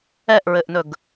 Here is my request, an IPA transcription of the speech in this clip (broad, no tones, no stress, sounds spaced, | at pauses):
ɛ ʔ ɹ ɘ ʔ n ɵ ɡ